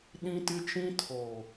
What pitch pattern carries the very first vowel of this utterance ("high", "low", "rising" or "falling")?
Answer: high